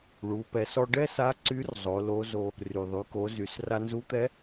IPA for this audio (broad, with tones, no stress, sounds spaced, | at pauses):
ɭ u˩˧ p ɛ˩˧ s ɔ˧ ɖ ɛ˥ s a˧˥ ǀ y˧˥ r zˤ o˩˧ l o˧˥ z o˧ | r y˩ ðˤ y˩˧ k o˩˧ z y˩˧ s r a˧ n z u˧˥ t̪ ɛ˧˥